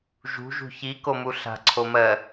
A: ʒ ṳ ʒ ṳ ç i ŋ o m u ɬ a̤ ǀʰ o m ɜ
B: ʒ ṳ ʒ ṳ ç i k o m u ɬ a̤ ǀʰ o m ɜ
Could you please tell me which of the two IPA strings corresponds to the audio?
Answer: B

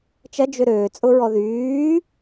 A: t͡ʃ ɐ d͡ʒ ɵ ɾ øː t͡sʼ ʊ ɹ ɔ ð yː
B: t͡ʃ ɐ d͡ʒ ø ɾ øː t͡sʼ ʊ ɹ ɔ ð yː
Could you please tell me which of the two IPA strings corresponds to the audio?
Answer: B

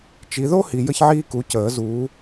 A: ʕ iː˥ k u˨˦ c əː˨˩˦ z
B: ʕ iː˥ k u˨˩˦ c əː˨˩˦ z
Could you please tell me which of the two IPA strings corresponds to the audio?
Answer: A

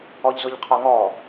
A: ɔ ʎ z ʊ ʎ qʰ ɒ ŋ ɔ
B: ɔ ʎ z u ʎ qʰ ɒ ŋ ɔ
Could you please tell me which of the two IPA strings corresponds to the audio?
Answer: A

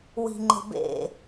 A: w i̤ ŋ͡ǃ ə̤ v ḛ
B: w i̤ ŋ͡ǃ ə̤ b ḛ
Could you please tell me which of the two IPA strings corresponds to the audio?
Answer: B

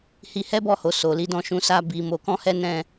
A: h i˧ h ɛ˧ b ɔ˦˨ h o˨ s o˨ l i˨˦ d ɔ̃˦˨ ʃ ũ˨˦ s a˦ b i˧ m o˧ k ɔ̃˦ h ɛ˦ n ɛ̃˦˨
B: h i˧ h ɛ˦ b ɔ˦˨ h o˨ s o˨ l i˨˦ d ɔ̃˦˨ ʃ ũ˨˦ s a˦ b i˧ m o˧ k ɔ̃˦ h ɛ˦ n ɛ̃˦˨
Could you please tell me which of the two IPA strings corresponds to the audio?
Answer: B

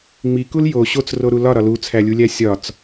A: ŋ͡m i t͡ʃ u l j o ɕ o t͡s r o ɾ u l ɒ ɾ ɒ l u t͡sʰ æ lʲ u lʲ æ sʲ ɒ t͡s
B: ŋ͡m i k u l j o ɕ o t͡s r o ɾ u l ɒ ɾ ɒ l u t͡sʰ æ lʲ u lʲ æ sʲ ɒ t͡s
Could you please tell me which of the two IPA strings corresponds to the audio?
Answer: B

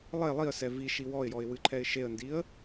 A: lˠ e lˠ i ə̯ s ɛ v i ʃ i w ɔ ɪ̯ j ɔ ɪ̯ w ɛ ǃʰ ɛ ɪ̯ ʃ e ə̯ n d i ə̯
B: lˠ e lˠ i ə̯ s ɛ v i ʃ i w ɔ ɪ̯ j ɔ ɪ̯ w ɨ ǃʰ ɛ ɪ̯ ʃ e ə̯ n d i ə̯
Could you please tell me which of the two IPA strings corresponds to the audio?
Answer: B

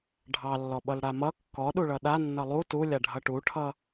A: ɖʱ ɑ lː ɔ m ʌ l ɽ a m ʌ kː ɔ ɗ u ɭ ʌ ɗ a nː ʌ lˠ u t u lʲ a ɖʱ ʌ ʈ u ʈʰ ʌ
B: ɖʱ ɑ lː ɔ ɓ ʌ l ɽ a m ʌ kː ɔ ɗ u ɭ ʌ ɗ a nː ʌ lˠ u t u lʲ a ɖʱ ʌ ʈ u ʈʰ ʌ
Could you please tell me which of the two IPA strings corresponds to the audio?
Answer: B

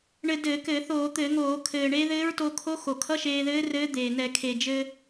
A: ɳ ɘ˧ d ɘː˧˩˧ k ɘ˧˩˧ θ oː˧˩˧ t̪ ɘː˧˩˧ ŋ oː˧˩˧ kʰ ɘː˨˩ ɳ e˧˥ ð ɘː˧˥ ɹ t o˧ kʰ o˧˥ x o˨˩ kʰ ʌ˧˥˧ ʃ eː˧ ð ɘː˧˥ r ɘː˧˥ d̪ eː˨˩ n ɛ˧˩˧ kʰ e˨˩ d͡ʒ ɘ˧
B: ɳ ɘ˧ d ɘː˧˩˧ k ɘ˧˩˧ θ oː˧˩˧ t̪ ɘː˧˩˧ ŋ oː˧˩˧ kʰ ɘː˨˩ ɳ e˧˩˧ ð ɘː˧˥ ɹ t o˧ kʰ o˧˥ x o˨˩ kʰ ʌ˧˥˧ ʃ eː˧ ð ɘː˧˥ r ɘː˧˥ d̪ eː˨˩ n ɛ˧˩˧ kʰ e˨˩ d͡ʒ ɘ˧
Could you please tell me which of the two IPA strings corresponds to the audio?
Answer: A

